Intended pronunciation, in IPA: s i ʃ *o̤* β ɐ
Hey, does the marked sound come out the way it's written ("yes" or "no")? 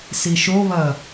no